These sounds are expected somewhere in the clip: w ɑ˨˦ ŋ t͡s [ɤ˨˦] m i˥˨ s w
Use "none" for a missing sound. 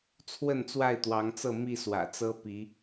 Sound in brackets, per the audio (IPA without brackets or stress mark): ɤ˥˨